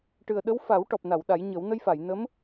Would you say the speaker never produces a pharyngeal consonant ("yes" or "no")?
yes